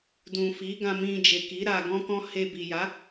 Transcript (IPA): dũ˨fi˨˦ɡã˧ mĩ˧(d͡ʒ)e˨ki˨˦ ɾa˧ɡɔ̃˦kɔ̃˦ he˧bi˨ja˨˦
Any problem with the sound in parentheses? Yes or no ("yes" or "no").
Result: no